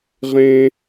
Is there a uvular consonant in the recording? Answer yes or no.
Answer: yes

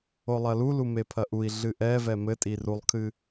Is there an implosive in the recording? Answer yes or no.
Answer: no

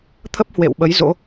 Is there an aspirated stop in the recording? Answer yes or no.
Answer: yes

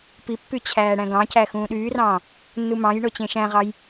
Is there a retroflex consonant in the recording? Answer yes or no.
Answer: yes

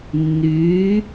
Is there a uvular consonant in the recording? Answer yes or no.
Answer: no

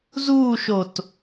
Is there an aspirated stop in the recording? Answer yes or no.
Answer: no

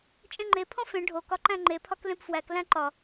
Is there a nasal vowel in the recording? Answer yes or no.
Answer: yes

